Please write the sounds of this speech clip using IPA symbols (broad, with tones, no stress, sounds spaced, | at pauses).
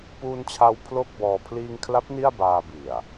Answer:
p uː˧ n t͡ɕʰ a˧ w pʰ l o˥˩ k̚ b ɔː˧ pʰ l iː˧ ŋ kʰ l a˦˥ p̚ n i˥˩ a̯ b aː˧ b i˨˩ a̯